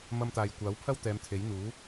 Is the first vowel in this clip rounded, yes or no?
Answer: no